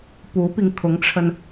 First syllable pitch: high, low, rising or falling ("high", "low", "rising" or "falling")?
rising